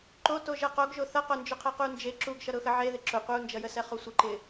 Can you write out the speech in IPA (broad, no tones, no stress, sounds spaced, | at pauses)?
ǃ o t o ʒ ʌ q o ɡ ʒ o θ ʌ q o n d͡ʒ ʊ qʰ ɛ q u n d͡ʒ e ǁ u ɡ ʃ ʌ ɾ ʊ x ə ʕ e ð ɪ ǁ ʊ qʷ ə u̯ n d͡ʒ ʌ j ə s ɛ χ o sʷ ʌ ǃ ɪ